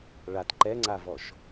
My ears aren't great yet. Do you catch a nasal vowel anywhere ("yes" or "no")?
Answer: no